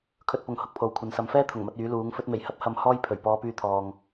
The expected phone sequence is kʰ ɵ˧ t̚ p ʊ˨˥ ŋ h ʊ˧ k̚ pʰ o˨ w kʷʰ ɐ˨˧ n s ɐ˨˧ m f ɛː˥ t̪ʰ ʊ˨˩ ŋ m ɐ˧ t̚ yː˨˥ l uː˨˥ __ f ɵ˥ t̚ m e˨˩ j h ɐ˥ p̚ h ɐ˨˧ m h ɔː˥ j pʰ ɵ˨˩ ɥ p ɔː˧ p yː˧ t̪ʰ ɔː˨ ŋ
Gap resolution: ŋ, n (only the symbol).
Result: ŋ